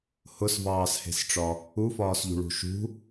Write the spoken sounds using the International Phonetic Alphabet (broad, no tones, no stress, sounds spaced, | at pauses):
h ʊ s v ɑː s h e̤ s ʈ͡ʂ ɒ | u f ɒː s ʎ ṳ ɭ ṳ ʃ ṳ